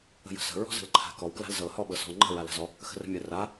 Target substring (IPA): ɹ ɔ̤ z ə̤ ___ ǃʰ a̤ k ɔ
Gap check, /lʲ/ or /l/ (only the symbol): l